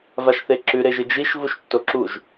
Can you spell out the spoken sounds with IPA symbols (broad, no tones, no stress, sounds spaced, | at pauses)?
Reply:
v a ʃ θ e ǁ ʉ ɾ e ʒ ɨ d͡ʒ i ʃ v u ʃ tː o ǁ u ʒ